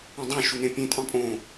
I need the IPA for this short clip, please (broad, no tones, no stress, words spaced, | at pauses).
ũdˤõ ʃunẽpʲẽ tʼɑ̃pʼõ